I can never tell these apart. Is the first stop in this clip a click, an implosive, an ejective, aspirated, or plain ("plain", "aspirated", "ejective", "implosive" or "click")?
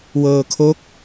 aspirated